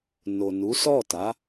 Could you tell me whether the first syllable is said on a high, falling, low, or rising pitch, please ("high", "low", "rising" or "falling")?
low